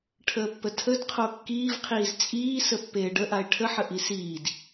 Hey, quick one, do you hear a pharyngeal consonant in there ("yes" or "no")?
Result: yes